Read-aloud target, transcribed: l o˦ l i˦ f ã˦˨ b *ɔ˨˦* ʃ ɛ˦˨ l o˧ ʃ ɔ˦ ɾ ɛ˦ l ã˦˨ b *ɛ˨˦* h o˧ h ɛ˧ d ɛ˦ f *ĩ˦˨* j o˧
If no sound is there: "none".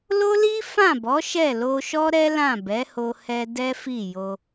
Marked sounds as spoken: ɔ˨˦, ɛ˨˦, i˦˨

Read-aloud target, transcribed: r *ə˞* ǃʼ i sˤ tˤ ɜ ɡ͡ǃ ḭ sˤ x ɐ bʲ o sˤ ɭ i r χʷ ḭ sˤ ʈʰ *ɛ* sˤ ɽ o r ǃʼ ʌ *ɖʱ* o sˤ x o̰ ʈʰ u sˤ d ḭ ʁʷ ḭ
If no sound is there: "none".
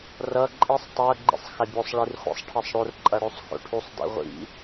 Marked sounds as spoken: ʌ, ɜ, ɽ

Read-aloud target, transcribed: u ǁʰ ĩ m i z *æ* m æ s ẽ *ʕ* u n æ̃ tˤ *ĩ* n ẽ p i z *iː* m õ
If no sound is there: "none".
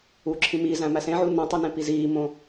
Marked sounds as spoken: æ̃, ʕ, i, iː

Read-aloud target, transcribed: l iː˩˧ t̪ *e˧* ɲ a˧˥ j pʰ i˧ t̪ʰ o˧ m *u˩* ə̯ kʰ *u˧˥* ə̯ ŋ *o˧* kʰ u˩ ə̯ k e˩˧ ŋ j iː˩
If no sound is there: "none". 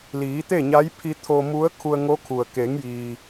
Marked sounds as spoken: e˥˨, u˧˥, u˧, o˧˥

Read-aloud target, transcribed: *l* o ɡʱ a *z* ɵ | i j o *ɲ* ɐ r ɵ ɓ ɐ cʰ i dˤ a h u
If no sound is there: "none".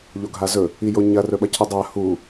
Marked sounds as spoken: ʎ, z, ɲ

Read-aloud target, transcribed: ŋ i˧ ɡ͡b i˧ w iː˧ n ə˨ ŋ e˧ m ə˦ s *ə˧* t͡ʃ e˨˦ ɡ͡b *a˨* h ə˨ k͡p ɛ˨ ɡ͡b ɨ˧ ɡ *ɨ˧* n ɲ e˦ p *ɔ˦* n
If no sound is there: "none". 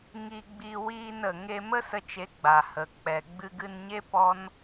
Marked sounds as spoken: ə˧, a˨, ɨ˧, ɔ˦

